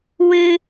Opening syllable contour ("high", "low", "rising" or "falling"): high